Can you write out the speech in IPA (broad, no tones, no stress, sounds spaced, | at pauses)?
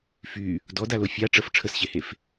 f y | d ɔ d a l o fʲ a ʈ͡ʂ ə f ʈ͡ʂʰ ə s ɕ e h e f